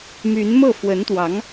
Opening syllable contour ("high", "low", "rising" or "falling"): rising